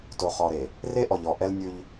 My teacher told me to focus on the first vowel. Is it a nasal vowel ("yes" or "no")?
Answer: no